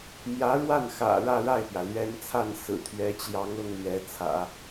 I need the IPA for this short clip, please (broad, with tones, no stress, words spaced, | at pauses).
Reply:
mjä˧˥ɻwa˥˩n xä̰˨˩ ɻä˥˧ɻa˥˩ɪ̯pjä˩ lɥɛ˥n t͡sʰa˥˩n sɹ̩˨˩t̪ʰɥɛ˧˥t͡ɕjɑ˧˥ŋ ɤ˥ŋlɥɛ˧˥t͡sʰä̰˨˩˦